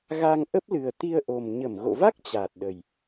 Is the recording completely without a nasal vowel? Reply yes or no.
yes